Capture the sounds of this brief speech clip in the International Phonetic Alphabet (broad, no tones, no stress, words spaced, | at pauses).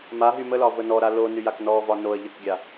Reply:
maɦy məlɒ vənɔɾa lo nyjaknɔvɒ noə̯ ʎəkɡʲa